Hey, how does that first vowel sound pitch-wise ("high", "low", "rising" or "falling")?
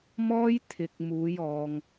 high